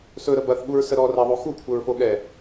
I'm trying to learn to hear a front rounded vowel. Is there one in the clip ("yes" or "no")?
no